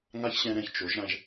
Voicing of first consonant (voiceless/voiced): voiced